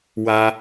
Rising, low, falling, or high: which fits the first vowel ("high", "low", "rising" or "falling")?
low